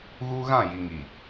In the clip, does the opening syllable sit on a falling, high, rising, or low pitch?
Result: high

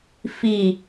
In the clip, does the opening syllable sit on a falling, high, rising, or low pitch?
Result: low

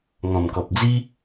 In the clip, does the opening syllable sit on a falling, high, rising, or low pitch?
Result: low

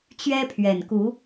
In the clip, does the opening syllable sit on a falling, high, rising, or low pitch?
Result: high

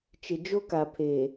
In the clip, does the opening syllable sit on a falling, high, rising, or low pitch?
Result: low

